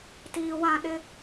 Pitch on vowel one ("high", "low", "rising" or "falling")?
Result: low